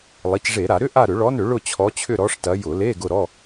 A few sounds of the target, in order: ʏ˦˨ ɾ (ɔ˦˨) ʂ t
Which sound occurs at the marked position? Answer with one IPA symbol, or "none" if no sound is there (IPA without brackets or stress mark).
ɔ˨˦